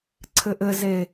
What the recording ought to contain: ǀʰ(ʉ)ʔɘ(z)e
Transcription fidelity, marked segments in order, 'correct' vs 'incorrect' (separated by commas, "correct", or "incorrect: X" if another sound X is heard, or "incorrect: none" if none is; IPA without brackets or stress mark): incorrect: ɘ, correct